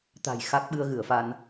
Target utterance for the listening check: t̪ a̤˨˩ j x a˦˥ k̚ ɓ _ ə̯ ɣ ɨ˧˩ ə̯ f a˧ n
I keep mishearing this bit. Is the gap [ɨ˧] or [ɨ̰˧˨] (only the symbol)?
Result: ɨ˧